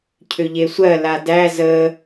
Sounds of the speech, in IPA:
cʰʏʎesʷɜ ladæ zə

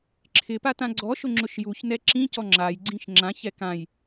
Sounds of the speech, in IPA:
ǁʰɪpa tãɡ͡ǀɔʃʊ ŋ͡ǁʊʃjuçnɛ ǁĩcɔ ŋ͡ǁajɡ͡ǀĩʃ ŋ͡ǁãçɛ kãj

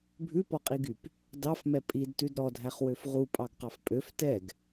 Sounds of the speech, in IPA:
bʱʉpɔqʼiɡyp | dɑfmɛ pʼidtʉd ɾɔdʱæχwøf ʁupʼɑɡqɑf pʼøf tɛɡ

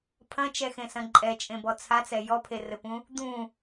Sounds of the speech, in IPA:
pʰɐ̃t͡ʃɛxẽsɐ̃ ǃʼɛt͡ʃʼẽbɔ t͡sʰat͡sɛ jɔpʰerɘpũ | d̪ũ

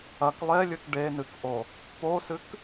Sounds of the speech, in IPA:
ɐk lˠelʲɨk ɖenɨkʔo | posɨk

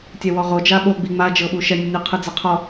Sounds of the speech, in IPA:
tʲɛwɔʁo d͡ʒaɓoɡ͡bi ŋ͡mad͡ʒɤ ɓuʃɛnʲɯnʲo qʰɯd͡zaqʰɔ

